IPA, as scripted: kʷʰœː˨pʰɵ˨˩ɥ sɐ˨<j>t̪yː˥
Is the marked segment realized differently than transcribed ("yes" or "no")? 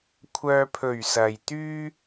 no